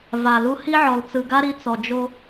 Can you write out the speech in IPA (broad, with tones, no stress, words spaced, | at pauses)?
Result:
va˨lu˦ hi˦ʕɔ˨lt͡sɯ˨ɡa˦ ɾi˦t͡sɔ˨d͡ʒo˦